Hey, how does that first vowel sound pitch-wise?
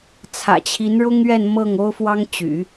low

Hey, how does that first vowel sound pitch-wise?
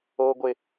high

